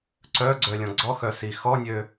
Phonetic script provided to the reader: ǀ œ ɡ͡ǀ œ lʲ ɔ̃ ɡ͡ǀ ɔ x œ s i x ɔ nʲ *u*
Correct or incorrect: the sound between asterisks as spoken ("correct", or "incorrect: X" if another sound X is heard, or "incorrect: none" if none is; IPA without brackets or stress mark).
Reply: incorrect: ø